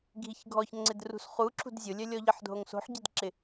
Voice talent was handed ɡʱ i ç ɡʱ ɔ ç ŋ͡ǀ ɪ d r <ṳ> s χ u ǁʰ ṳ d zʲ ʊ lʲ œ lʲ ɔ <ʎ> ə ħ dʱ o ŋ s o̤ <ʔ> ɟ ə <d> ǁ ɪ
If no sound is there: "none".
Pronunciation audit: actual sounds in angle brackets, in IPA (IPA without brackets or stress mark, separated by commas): ṳ, ʎ, ħ, d